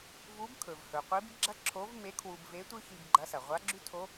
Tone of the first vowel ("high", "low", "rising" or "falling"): rising